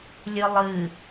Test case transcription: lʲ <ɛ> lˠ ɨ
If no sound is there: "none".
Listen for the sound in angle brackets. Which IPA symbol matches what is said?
ɨ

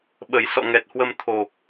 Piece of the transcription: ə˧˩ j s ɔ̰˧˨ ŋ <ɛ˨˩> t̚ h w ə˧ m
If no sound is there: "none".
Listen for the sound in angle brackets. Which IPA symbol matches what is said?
ɛ˨˩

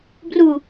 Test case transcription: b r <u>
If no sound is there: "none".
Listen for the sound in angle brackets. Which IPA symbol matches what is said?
u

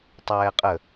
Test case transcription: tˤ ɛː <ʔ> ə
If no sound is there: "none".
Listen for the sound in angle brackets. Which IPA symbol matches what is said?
qʼ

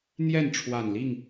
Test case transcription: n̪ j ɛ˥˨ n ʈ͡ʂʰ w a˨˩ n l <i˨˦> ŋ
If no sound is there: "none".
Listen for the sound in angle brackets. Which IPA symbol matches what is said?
i˥˨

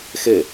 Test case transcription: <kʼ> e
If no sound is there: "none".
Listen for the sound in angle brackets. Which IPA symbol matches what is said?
x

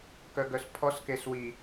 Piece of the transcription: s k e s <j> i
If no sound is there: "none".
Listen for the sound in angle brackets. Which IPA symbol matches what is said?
w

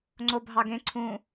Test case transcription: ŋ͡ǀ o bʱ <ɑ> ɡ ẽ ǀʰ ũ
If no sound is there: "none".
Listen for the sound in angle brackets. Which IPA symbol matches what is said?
ɑ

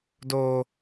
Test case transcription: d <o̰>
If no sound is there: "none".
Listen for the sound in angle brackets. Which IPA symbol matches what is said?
o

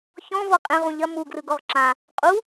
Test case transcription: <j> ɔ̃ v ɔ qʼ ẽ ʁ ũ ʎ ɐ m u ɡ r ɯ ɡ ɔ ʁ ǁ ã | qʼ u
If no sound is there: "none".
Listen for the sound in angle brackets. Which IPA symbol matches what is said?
ç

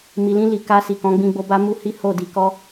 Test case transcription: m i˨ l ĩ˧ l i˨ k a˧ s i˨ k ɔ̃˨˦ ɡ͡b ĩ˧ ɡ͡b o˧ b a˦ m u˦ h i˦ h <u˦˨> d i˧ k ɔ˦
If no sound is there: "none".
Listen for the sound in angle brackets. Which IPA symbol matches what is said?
o˦˨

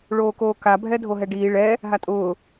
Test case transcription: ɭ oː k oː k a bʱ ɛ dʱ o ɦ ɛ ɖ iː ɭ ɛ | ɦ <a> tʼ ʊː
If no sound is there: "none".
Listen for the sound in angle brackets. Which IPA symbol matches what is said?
a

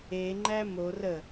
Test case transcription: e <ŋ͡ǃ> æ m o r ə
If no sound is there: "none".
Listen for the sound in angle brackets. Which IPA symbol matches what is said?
ŋ͡ǃ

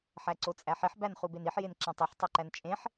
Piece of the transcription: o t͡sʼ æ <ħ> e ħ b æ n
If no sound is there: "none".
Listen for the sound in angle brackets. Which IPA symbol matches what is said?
ħ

